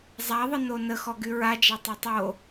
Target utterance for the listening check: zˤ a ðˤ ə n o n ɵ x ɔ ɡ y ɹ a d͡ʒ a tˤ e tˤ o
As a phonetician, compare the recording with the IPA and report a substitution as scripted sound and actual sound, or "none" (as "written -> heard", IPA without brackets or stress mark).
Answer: ɵ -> ə